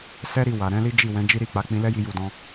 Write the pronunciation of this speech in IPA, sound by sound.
s ɛ˦ ɾ i˧ w a˨ ɾ ɛ̃˨˦ l i˦ d͡ʒ i˦˨ w ɛ̃˨˦ d͡ʒ i˦ ɾ i˦˨ k͡p a˨˦ k͡p ĩ˧ l ɛ˦ j i˧ j u˨ d ɔ̃˧

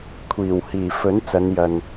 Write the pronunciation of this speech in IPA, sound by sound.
kʷʰ iː˨˩ w h iː˨˩ f ɵ˨˥ n t͡s ɐ˨˧ n j ɐ˨ n

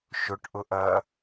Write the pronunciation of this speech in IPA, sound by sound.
ʃ ʊ ʈ ʔ ʊ ʔ ɐː

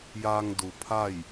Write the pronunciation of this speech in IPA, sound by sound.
j aː˧ ŋ d u˩ pʰ a˥˨ j

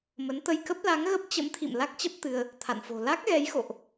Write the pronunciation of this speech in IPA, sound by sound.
m ə˨˦ n t̪ ə˧ j k ə˦˥ p̚ l a˨˦ ŋ ɣ ə˦˥ p̚ t͡ɕ ə̰˧˥ m t̪ʰ ḭ˧˨ m l a˦˥ k̚ t͡ɕ ə˦˥ p̚ t̪ ɨ˧ ə̯ | t̪ʰ a̰˧˨ n f o̤˨˩ l a˦˥ k̚ ɣ ɛ˨˦ j x o̰˧˨ ʔ

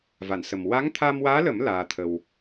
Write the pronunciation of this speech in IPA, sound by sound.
v a˨˩˨ n s ə˨˩ m w a˧˥ ŋ t̪ʰ a˧ m w aː˧˥ l ə˨˩˦ m l aː˧ t̪ʰ ə˧ w

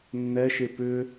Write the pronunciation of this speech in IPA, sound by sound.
nː ɛ ʃ e p ʏ

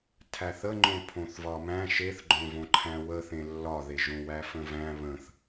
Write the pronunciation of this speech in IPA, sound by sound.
tʰ æ θ ə ŋ͡ǃ õ pʰ õ θ v ɒ m æ̃ ʃ e θ ɡ͡ǃ õ v õ ǃʰ æ̃ w ə θ ẽ lː ɒ ð e ʒ õ w æ f ə̃ v æ̃ β ə̃ θ

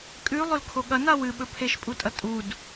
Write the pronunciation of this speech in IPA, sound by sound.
kʼ ʉ lˠ ɵ l kʰ o ɠ ɐ n a w ɨ ɓ ɵ pʰ e ʃ pʼ u tʼ ɐ tʼ u d

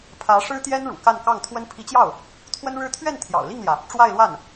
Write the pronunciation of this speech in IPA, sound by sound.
pʰ ä˧˥ ʂ ɻ̩˥ t̪ j ɛ˥ n ɻ ṵ˨˩ k a˥˧ n k ɑ˥˩ ŋ t̪ʰ w ə˥ n pʰ i˧˥ t͡ɕ j ɑ˥˩ ʊ̯ | t̪ʰ w ə˥ n ɻ ɻ̩˥ t̪ʰ ɥ ɛ˥˩ n t̪ʰ j ɑ̰˨˩ ʊ̯ l i˥˩ ŋ l j ä˩ | ʈ͡ʂ w a˥˧ ɪ̯ l w a˥˩ n

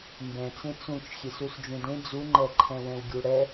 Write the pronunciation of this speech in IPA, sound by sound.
m b ɛ̃ t͡s ẽ t͡s ũ t͡ʃ xʲ e s u s d͡ʒ ũ d ẽ d͡z u ŋ͡ǃ ɛ ǃʰ ɛ̃ w ɛ̃ w ɡʲ u ɽ ɛ

